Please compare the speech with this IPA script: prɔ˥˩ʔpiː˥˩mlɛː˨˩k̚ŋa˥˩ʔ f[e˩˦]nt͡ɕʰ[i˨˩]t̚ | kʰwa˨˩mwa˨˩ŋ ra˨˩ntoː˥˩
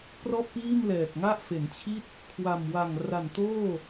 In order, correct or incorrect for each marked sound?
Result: correct, incorrect: i˥˩

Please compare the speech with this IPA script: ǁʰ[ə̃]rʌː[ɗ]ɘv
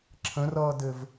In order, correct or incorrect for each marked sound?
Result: correct, incorrect: d

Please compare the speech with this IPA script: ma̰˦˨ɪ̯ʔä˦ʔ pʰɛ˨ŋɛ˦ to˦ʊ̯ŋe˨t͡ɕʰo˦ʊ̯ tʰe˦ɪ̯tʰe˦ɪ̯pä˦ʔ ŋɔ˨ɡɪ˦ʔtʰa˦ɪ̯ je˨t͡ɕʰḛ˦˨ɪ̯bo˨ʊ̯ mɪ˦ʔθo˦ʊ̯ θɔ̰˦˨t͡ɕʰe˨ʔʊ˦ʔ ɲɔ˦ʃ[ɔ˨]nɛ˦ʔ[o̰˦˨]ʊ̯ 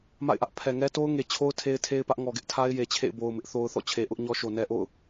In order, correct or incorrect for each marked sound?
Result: incorrect: o˨, correct

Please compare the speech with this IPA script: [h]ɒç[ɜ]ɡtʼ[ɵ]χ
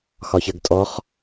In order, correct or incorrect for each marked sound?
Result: incorrect: x, correct, incorrect: ɔ

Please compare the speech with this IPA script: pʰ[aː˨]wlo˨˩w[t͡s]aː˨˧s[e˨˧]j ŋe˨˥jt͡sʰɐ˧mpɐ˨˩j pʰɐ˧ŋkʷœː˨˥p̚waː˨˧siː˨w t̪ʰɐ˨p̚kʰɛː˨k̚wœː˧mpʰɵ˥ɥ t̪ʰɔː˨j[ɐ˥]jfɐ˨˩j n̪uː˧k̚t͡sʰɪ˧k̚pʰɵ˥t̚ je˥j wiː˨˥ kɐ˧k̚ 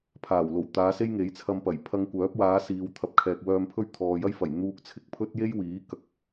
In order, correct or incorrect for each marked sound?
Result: incorrect: aː˨˩, incorrect: t̪, incorrect: e˥, correct

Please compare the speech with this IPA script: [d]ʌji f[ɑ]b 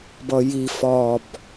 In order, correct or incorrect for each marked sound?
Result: incorrect: b, incorrect: ɒ

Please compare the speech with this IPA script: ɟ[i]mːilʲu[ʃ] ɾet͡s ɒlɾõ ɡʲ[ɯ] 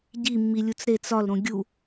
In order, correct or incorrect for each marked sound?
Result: correct, incorrect: t͡s, incorrect: u

